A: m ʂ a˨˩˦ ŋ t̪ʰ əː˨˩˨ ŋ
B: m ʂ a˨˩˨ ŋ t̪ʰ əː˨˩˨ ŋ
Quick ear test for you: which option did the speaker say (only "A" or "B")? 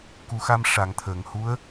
B